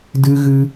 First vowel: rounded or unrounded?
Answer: unrounded